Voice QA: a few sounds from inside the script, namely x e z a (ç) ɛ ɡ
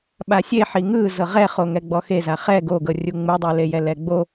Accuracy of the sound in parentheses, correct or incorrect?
incorrect